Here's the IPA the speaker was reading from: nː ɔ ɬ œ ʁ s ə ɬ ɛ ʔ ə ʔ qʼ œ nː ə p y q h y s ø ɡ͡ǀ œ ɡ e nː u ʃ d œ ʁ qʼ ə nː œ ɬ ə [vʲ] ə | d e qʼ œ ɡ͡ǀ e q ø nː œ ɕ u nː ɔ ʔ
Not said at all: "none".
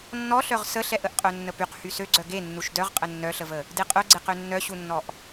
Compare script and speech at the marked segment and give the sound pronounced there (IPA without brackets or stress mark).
v